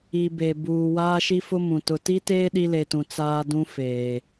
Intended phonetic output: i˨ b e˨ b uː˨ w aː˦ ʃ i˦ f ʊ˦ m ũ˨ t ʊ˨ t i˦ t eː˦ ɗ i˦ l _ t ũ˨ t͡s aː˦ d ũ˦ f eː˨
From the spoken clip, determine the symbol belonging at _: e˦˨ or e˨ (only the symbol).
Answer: e˨